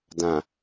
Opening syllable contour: low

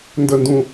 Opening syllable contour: falling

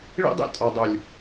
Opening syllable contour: high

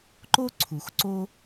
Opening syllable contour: high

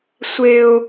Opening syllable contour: high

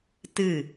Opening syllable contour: falling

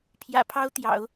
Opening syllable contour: low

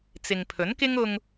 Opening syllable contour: low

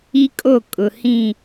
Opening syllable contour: high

